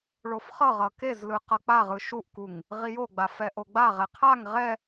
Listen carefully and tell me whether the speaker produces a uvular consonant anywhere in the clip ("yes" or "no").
yes